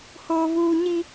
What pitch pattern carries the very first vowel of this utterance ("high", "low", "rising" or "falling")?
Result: high